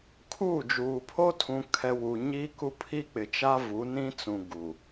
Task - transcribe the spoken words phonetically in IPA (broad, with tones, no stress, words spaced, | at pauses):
kʰuː˦˨d͡ʒuː˨ pʰo˦tʰũ˨kʰɛ˨ wu˨ ɲiː˦ku˦ pʰi˦k͡pɪ˨ t͡ʃa˦vu˨˦nĩ˦t͡sũ˨ ɡu˨